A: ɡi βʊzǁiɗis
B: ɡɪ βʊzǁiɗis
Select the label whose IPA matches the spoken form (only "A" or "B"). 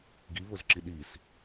A